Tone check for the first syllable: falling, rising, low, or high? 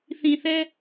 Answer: low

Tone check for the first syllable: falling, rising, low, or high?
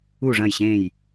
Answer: falling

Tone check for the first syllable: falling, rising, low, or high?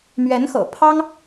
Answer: rising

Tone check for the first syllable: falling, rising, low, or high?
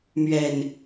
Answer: low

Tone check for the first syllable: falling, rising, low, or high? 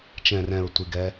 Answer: low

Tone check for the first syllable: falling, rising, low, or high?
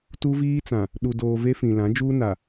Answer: high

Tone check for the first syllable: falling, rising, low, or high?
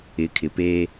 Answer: rising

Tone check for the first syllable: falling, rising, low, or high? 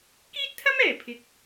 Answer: high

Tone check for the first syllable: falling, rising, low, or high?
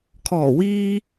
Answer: low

